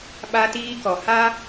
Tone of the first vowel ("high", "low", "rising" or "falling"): high